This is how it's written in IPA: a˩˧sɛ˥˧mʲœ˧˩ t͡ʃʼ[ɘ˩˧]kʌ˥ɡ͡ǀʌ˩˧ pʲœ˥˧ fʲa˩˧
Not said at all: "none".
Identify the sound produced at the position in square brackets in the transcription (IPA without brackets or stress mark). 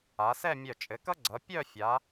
ɘ˩˧